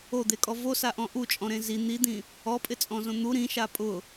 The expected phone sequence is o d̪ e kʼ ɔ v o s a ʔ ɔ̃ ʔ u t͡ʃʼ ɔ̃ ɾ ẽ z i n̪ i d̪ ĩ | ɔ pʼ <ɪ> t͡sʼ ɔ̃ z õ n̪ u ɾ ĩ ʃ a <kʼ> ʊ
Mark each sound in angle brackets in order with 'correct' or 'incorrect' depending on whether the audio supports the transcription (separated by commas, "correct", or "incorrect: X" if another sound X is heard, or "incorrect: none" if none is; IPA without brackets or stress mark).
correct, incorrect: pʼ